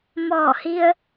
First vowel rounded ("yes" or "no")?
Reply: yes